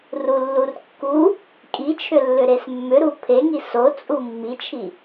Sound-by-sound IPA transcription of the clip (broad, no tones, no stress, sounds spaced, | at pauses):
r u lː u r kː u | kʼ i t͡ʃʰ ʏ lː ʏ ɾ e s mː ʏ ɾ u pʰ e ŋ i s o t͡sʼ u mː i t͡ʃʰ i